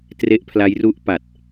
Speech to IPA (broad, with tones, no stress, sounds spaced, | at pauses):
t r e˦˥ ʔ pʰ l a˦˥ j r u˦˥ ʔ p a˨˩ t̚